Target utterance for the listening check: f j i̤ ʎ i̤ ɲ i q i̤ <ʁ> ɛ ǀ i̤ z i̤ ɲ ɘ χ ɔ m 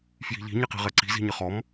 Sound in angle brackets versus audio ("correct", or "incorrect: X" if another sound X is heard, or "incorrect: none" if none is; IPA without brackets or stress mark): correct